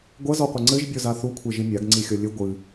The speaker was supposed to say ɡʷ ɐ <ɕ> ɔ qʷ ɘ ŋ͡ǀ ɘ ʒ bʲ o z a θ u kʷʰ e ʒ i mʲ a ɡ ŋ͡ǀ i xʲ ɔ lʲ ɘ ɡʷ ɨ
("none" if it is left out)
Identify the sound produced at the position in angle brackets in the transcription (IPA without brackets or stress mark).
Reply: z